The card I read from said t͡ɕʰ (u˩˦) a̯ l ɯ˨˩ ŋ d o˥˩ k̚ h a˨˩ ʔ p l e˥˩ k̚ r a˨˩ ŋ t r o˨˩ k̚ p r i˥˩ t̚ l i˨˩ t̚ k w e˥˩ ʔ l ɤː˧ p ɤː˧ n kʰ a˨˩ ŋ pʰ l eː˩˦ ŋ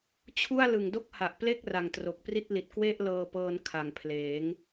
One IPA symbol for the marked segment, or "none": u˥˩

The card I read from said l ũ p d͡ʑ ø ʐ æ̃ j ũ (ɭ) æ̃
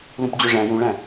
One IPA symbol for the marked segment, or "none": ɭ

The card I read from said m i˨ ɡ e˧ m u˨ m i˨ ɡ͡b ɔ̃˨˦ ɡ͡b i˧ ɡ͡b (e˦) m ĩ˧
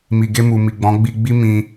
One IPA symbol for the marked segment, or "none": i˦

